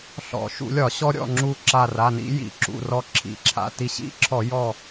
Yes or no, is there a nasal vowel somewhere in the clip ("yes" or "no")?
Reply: no